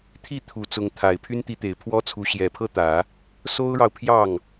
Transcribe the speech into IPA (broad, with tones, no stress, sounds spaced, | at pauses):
t̪ʰ i˥˩ t̪ʰ u˨˩ t͡s ʊ˧˥ ŋ t̪ʰ a˨˩ ɪ̯ pʰ y˥ n t̪ i˧˥ t̪ e˨˩ ɪ̯ pʰ w ɔ˥ t͡sʰ u˧˥ ɕ j ɛ˨˩ pʰ ɤ˥˩ t̪ ä˨˩˦ | s o˥ ʊ̯ ɻ ɑ˨ ʊ̯ pʰ j ɑ˥˩ ŋ